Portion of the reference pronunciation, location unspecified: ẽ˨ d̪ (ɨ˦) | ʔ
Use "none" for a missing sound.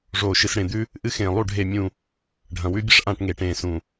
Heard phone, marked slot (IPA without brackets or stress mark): ʉ˦